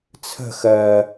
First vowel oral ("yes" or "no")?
yes